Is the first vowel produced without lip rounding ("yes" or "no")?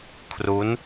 no